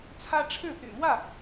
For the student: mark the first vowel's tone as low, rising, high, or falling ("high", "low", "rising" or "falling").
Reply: high